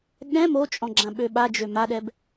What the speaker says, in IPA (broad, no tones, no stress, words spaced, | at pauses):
ɠɛ̃ mot͡ʃʼɔ̃ɡ͡ǁã ɓøɓad͡ʒø maɗɛb